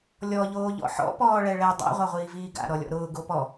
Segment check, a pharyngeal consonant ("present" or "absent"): present